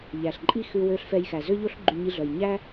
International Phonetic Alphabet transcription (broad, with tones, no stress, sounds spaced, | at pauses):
ʎ æ˨ ɬ ǃʼ i˦ x ʉ˧ w ø˧ ɬ f ɛ˧ j x æ˨ z ø˧ ʎ o˧ ɬ ɡ͡ǃ y˧ ɲ i˧ ɮ œ˨ j ɲ æ˦